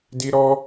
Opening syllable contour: high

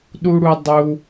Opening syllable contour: high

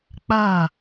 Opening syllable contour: falling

